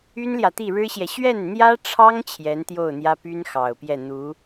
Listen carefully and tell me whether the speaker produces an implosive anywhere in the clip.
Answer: no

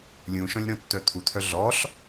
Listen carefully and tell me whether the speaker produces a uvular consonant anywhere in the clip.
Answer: no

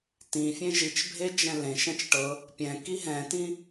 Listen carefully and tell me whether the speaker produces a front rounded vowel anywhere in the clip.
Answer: no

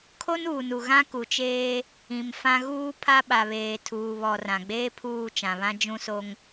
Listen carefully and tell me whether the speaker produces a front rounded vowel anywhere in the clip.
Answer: no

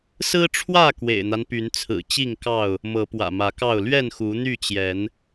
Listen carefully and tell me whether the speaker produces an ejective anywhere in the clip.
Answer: no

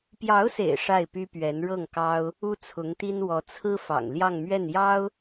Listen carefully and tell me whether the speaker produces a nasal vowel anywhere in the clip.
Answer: no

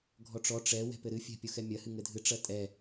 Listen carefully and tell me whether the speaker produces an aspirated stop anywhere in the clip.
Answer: no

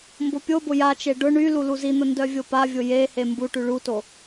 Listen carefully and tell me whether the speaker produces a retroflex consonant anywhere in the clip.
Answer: yes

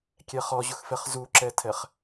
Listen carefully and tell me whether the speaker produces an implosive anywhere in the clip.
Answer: no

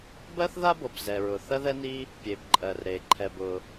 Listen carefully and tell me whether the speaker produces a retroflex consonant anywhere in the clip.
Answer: no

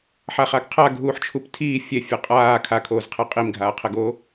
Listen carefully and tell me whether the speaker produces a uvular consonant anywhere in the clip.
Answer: yes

